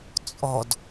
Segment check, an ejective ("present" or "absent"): present